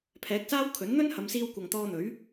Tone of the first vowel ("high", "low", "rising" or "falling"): rising